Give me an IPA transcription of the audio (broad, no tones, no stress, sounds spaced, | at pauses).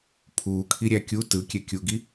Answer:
pʰ uː kʰ i ɾʲ æ kʲ u t ɯ kʲ ɛ kʲ u ɡ i